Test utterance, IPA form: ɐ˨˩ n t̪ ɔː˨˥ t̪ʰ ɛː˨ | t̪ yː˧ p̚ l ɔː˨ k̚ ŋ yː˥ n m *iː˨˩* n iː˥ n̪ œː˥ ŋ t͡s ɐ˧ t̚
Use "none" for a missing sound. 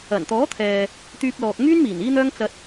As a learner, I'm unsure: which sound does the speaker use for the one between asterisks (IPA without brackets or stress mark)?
iː˨˩